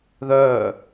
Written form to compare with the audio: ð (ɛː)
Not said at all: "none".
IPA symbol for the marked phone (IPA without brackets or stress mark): œː